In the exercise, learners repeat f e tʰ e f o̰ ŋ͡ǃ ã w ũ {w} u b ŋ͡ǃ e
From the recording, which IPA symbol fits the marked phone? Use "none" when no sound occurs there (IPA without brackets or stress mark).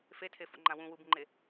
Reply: w